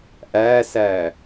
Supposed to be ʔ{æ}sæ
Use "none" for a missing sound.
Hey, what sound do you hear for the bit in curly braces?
æ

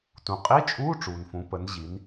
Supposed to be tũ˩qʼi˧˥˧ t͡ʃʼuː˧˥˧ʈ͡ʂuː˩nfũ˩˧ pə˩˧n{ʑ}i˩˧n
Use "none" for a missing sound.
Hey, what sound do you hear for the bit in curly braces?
ʑ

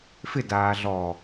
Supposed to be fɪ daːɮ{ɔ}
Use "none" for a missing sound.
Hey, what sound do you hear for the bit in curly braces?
ɔ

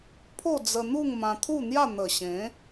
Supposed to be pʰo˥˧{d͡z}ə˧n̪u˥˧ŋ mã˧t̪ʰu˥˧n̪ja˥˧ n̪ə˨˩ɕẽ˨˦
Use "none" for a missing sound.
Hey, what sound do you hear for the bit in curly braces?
d͡z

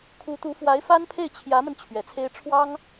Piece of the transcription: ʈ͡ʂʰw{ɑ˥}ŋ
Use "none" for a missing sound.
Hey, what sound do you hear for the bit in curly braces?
ɑ˥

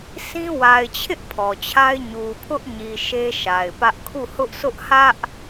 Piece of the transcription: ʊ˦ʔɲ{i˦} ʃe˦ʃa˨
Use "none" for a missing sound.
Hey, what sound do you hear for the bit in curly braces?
i˨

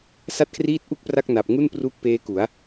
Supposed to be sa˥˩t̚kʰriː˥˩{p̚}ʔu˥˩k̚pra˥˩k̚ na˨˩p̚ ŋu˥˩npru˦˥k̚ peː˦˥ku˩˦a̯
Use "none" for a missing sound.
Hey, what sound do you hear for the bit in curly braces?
t̚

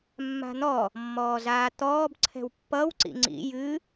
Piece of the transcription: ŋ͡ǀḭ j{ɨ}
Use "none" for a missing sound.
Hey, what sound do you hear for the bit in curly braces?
ɨ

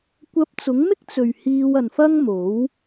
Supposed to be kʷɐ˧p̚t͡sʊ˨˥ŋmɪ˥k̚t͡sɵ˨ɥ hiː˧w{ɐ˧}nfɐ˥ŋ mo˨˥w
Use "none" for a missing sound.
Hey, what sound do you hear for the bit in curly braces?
ɐ˨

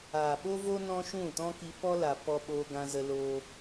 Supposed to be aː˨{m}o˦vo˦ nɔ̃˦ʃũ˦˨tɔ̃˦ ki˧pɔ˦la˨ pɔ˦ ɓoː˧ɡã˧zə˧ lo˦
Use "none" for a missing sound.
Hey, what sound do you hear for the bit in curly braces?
ɓ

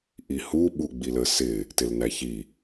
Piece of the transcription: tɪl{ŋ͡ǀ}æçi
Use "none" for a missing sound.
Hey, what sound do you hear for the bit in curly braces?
n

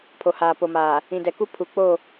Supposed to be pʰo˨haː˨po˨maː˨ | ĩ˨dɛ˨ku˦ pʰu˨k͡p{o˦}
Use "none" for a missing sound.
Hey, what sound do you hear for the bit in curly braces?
o˦˨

